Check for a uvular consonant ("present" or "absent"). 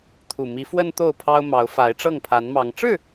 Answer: absent